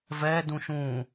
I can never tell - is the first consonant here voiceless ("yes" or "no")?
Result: no